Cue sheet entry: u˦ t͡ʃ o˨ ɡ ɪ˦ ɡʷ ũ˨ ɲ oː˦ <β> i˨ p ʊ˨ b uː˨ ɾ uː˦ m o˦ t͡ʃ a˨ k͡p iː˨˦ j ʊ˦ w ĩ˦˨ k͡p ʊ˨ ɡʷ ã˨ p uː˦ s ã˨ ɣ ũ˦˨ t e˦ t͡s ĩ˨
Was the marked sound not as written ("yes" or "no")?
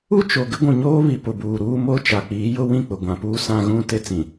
no